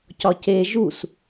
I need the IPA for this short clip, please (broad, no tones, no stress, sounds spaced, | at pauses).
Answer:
c ɒ c e ʒ u s